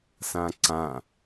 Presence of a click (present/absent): present